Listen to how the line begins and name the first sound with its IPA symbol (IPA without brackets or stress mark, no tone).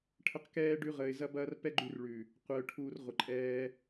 ʈʰ